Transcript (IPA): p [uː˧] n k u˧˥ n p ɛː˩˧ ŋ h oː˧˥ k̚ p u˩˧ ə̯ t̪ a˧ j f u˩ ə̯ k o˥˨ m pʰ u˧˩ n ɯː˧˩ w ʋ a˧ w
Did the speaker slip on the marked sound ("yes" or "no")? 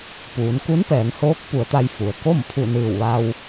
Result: yes